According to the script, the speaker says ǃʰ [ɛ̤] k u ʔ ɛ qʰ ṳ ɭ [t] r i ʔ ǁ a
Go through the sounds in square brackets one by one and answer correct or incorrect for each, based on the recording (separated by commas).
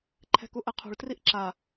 correct, correct